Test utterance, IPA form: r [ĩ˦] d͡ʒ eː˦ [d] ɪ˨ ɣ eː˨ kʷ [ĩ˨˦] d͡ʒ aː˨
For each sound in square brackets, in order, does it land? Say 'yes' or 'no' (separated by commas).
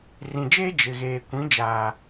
no, no, yes